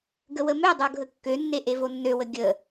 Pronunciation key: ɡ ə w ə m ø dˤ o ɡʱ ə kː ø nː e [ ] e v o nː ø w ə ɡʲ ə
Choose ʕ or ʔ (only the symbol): ʔ